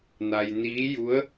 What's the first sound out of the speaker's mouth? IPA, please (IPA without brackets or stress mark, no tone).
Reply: n